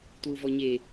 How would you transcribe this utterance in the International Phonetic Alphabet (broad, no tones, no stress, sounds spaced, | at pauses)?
t w u v ɔ ɲ e